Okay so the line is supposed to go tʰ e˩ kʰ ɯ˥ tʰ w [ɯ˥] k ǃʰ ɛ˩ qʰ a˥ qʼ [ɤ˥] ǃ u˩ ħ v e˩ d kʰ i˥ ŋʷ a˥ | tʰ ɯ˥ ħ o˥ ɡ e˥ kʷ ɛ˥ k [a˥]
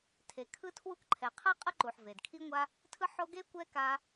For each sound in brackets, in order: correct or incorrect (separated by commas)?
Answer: incorrect, correct, correct